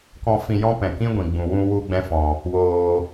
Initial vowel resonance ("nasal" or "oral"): nasal